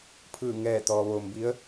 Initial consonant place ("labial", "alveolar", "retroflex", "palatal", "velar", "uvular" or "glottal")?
labial